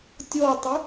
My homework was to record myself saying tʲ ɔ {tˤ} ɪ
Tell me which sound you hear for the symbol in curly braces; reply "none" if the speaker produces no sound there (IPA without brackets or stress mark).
tˤ